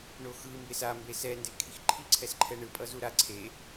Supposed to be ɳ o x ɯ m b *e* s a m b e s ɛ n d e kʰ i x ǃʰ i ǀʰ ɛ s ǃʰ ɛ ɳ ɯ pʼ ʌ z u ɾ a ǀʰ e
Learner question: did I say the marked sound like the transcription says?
yes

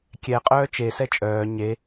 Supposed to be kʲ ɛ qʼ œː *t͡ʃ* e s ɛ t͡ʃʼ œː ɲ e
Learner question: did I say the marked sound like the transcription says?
yes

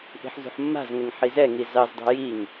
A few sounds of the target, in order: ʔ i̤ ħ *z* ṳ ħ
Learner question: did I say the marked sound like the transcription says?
yes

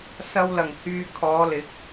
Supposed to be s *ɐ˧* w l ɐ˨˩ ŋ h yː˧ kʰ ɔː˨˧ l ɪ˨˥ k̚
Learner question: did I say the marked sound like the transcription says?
yes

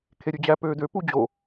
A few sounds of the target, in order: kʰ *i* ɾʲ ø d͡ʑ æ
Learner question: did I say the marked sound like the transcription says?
no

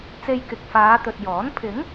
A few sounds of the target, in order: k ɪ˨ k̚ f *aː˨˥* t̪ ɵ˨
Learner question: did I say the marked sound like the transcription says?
no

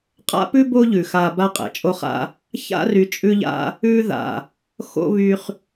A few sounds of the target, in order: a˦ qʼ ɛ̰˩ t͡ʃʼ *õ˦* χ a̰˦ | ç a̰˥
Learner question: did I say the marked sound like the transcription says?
no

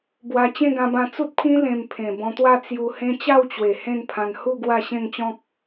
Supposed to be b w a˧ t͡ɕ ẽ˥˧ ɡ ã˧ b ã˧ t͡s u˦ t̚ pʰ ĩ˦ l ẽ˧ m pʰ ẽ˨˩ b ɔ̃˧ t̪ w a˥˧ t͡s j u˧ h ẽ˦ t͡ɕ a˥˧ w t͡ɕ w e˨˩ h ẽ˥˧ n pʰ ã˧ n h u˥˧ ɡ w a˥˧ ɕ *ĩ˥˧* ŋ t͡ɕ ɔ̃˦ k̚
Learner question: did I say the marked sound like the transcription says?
no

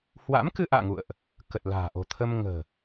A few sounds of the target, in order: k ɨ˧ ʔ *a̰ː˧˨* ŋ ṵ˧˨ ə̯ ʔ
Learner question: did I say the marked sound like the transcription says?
yes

